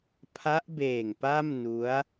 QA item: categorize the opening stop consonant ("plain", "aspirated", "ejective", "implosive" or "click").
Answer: aspirated